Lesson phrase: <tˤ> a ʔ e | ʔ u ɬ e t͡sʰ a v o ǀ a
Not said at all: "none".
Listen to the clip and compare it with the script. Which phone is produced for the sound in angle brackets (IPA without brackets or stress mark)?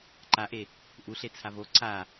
ǃ